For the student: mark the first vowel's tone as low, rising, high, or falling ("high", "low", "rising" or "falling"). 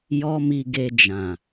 high